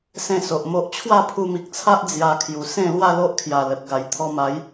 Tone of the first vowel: falling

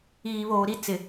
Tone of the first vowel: low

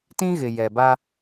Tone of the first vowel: high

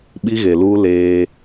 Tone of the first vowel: high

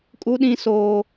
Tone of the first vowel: high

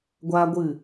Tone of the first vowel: high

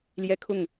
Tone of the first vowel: high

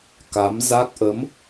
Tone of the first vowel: rising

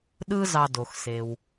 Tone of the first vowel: high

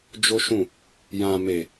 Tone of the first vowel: high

